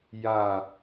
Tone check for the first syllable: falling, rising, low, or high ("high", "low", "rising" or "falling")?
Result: falling